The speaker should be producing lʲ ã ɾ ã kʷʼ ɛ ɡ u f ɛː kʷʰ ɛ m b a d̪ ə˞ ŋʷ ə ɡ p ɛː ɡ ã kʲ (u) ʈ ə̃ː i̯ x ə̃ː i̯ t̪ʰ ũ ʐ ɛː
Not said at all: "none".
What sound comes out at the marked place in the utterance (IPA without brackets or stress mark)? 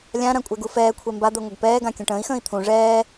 ũ